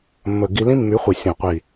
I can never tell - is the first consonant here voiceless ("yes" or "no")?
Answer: no